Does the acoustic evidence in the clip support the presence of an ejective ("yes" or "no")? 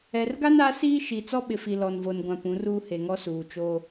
no